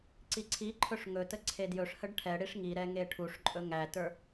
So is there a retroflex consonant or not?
yes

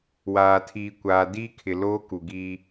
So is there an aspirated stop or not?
yes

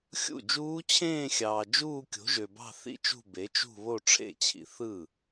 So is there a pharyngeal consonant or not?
no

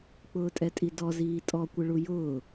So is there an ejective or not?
yes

